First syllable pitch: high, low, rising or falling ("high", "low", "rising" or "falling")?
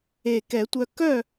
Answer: low